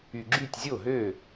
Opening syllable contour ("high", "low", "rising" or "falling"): low